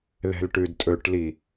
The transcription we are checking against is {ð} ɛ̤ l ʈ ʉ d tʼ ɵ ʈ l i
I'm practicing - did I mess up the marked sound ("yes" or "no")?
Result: no